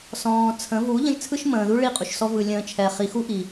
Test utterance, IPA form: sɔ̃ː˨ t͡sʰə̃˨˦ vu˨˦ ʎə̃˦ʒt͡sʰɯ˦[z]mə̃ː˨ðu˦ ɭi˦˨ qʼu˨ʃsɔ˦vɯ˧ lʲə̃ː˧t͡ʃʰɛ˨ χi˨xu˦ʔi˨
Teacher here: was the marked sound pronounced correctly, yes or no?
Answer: no